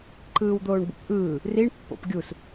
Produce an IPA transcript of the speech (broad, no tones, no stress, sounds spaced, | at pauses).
ǃ ɯː w d̪ oː ɳ b ṵ p ʔ ɯː | r i ɳ pː o̰ p ɡʲ u s